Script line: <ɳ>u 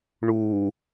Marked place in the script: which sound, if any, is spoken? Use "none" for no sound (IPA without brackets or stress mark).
ɳ